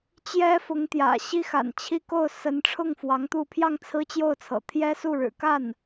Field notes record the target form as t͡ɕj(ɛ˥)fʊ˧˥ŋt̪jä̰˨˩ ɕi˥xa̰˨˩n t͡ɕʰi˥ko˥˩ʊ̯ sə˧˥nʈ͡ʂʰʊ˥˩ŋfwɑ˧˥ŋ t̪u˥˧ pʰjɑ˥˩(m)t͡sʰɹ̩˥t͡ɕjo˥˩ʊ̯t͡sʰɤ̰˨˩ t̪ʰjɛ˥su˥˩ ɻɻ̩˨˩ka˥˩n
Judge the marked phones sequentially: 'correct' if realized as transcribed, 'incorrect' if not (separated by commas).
correct, incorrect